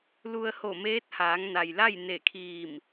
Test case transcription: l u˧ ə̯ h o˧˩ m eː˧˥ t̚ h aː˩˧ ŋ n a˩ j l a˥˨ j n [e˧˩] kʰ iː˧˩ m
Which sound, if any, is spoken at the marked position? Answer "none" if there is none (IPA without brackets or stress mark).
e˧˩